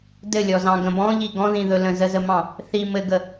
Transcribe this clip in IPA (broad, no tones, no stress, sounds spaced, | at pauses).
d ɘ lʲ ɔ z ɑ̃ ɡ ə̃ b ɔ̃ ʎ i ɡ ɔ̃ ð ĩ ð ɵ l ə̃ z ə z ə m ɑ̃ | θ i m ɘ ɡ ə